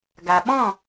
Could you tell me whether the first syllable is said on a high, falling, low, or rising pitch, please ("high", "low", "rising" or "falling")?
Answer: low